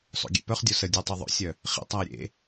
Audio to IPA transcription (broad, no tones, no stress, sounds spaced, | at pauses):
sˤ o̰ ɡʲ ḛ p œ χ dʲ o s ə dʲ o tˤ ø ðˤ o̰ sʲ œ | χ ḭ tˤ a ɪ̯ ɾʲ ḛ